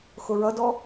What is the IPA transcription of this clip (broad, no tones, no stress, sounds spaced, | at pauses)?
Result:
x ʊ ɹ ʌ d ɔ